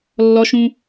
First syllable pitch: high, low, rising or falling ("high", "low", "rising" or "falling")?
high